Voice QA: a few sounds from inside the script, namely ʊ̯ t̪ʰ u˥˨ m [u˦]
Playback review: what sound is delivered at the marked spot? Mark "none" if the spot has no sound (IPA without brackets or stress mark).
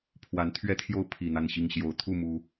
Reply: u˦